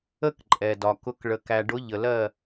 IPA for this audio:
ə˧˩ k ǃʼ ɛ˩ d ɒ˩ k ʊ˩˧ k ɭ ə˩ k æ˩ ɖ ʊ˩˧ ʎ ə˩ l ɜ˧˩

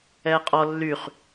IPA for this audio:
ɛː qʼ ɔ lː y χ

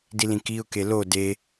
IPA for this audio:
d i l ĩ k i ʊ̯ k e l o d e

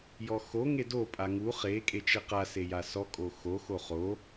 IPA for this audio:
j ɔ x o ŋ e d o pʼ a ŋ u χ e kʼ e t͡ʃ e q a s e j a s ɔ kʼ o x o x o χ o

